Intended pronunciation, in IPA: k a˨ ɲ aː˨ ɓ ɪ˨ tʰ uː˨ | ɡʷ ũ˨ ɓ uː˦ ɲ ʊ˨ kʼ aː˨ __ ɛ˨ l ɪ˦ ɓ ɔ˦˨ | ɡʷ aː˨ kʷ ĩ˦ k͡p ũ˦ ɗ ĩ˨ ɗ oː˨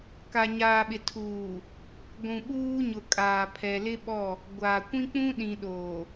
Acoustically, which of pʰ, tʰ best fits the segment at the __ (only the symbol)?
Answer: pʰ